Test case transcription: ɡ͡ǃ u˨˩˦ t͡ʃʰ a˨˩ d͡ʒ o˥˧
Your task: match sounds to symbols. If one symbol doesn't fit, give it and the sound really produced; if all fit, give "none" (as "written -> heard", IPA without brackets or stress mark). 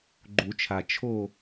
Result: d͡ʒ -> t͡ʃʰ